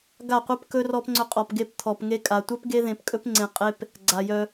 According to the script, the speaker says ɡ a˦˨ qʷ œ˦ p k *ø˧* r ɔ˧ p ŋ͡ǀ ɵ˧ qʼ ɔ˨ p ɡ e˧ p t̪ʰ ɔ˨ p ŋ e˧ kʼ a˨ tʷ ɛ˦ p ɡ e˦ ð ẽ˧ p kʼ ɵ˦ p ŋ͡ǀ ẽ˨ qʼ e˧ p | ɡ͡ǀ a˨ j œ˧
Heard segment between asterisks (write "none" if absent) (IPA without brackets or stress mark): ɵ˧